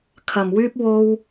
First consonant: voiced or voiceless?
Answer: voiceless